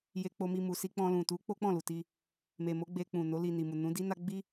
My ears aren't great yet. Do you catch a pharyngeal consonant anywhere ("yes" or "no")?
no